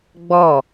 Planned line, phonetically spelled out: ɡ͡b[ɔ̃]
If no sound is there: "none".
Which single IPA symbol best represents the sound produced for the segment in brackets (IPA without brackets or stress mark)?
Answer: ɔ